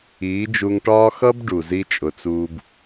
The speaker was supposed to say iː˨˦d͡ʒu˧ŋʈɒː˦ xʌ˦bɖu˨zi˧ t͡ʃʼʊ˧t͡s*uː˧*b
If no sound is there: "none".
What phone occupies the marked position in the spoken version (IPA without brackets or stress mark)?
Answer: uː˦